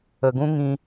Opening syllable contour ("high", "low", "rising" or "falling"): low